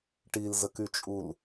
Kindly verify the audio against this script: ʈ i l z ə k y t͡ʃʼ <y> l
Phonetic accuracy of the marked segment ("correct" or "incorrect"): incorrect